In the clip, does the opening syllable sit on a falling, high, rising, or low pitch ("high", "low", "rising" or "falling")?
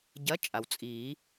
rising